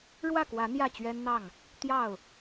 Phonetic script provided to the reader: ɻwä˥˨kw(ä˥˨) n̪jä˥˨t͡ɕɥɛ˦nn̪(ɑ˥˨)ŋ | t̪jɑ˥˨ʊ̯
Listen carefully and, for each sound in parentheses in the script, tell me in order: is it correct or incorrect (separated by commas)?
incorrect, correct